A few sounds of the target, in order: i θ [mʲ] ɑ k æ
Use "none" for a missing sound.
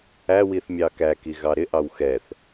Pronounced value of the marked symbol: mʲ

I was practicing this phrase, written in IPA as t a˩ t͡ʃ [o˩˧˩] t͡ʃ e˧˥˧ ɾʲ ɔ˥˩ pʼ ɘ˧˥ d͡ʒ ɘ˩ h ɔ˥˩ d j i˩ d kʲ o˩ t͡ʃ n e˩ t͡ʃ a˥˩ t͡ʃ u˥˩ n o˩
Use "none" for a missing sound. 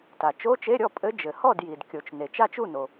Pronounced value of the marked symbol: o˧˥˧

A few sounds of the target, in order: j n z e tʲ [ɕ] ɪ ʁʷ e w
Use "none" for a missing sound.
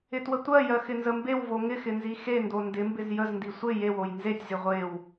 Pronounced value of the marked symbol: z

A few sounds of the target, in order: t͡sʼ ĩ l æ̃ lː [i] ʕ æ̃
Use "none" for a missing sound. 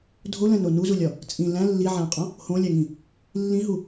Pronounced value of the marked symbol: i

